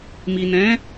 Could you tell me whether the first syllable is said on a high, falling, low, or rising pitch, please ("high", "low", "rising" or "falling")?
low